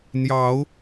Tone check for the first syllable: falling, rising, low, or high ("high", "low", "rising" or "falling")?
rising